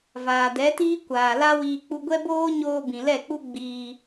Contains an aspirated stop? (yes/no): no